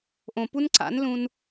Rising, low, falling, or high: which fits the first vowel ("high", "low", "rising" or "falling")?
low